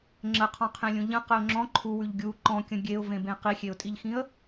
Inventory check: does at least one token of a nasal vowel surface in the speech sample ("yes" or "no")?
yes